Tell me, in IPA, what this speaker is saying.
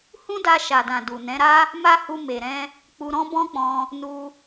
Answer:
hũ˦da˧ʃa˨dã˨ du˨nɛ̃˨˦ɾa˦ | ma˦hu˧ me˨ɾɛ̃˧ | k͡pu˧ɾɔ̃˦bɔ̃˦k͡pɔ̃˧ | nu˧

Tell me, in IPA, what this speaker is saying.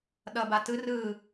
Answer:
ɗʌbatɯ rɯ

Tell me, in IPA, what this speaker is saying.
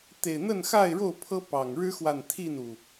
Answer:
t̪e˨˩ɪ̯n̪ə˥˨nxa˥˨ɪ̯ɻo˥˨ʊ̯ pʰɤ˦pɑ˨˩ŋ ɻɻ̩˦xwa˨n t̪ʰi˥˨nu˩

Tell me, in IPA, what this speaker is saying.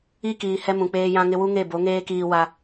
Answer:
i˦kiː˨ hɛ˦mũ˨k͡peː˦ jã˦ŋɪ˦ wu˦ŋe˦˨bo˨˦ŋeː˦ kiː˦wa˦

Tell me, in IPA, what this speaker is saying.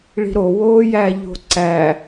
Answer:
ɭi̤ɾo woːjæʎo̤ǀæ

